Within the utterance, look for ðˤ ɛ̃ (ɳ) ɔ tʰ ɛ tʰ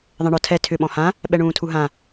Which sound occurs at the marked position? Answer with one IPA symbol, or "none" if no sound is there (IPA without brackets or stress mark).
ɳ